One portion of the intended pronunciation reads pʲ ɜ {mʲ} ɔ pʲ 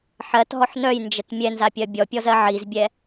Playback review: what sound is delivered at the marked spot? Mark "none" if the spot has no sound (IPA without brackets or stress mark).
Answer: bʲ